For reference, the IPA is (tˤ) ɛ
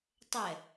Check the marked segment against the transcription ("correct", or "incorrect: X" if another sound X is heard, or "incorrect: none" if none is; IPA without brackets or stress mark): correct